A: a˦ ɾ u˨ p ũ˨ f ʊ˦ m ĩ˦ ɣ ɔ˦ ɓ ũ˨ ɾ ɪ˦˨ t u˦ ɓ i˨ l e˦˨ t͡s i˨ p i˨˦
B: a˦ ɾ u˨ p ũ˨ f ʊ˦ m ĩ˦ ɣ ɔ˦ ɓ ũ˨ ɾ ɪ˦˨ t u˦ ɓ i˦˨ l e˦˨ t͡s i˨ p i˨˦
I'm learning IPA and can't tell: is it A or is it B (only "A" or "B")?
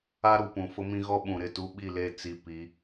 B